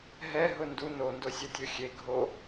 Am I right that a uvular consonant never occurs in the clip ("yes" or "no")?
yes